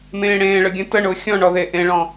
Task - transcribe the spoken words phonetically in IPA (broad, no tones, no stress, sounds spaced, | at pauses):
m ẽː ɽ ẽː ɭ ə ɡʲ ə̃ t ə ɳ ʊː xʲ ɔ̃ ɳ ɔ ð eː ʔ ẽ ɭ ɔ̃